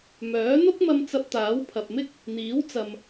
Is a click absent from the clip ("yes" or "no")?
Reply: yes